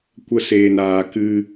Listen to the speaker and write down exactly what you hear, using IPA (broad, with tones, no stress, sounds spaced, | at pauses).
kʷ ə˧ s eː˨ n aː˨ k ɨ˧